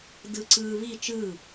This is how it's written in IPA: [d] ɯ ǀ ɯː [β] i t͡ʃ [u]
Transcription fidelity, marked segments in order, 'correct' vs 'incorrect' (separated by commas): correct, correct, incorrect